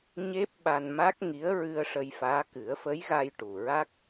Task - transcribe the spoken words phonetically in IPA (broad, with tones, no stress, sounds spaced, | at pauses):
ɲ e˦˥ p̚ ɓ a˧ n m a˦˥ k̚ ŋ i˧˥ ə̯ ɹ ɨ˧ ə̯ ʂ ə˧ j f aː˧˥ k ɨ˨˩˦ ə̯ f ə˧˥ j ɣ a˧ j ʈ u˨˩ ɹ a˦˥ k̚